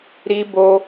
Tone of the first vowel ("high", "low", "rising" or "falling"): high